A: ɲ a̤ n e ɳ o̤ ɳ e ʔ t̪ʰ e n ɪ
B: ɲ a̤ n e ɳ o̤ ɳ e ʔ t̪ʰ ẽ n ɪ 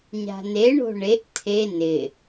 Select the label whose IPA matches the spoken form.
A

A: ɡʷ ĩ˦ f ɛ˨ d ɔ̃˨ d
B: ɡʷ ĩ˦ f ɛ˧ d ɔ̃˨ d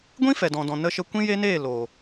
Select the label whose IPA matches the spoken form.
A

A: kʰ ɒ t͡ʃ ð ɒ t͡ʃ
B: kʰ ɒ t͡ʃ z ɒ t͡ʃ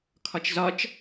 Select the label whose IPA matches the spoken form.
B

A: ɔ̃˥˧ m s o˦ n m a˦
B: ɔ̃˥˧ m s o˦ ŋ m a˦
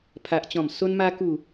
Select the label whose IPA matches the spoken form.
A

